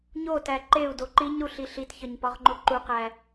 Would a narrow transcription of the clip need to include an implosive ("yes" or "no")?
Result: no